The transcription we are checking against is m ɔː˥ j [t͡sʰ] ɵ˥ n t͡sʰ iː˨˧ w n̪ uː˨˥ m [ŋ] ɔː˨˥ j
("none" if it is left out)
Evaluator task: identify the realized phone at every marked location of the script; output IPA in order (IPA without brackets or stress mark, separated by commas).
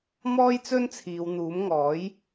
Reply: t͡s, ŋ